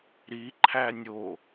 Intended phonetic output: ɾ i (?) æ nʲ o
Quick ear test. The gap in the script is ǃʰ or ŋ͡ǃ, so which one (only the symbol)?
ǃʰ